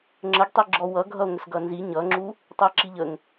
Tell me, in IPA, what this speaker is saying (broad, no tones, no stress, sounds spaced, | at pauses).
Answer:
ŋ͡ǁ ə ɡ tˤ i ɡ͡ǁ ɔ w ʌ ɡʱ ʌ o̯ ŋ ə s ɡ ʌ n z i ɲ ʌ ŋ͡ǁ u | tˤ ʌ e̯ ǁ i ʎ ə ŋ